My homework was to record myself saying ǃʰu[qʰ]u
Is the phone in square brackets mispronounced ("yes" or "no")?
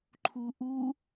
yes